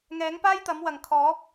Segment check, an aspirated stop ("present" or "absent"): present